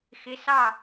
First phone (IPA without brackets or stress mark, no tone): x